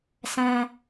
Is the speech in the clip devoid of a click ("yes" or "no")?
yes